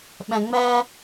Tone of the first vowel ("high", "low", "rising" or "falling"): low